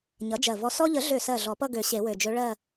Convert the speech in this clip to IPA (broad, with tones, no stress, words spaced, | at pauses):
ɲʌ˩˥d͡ʒɜ˨˩vɔ˧ sɔ˧ʎə˨˩˦ɮø˨˩sɜ˨˩ ɮɔ˨˩˦pʌ˥˧ɡø˨˩˦ ɕe˨˩˦wø˨˩d͡ʒø˧˥ ɭɜ˥˧